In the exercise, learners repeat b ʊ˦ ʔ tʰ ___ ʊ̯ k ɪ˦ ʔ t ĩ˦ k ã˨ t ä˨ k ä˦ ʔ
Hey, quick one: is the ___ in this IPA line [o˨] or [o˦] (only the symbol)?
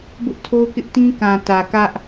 o˦